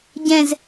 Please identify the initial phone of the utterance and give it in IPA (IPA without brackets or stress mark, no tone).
ɟ